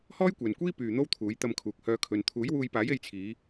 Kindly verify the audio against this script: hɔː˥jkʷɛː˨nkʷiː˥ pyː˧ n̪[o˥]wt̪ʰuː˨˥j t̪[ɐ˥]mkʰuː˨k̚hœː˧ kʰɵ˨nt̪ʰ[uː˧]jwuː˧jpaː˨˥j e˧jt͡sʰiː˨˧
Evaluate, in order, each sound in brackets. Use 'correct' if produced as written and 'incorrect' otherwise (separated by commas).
correct, incorrect, incorrect